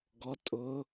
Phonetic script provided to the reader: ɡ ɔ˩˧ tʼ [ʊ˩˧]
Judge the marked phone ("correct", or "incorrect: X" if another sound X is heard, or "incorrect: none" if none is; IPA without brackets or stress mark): correct